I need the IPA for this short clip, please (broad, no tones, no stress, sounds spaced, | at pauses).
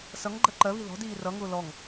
s ʌ ŋ ɡ͡ǃ ɜ ǃ ɜ β i ð ɔ̤ d iː r ʌ ŋ ʊː l ɔ ŋ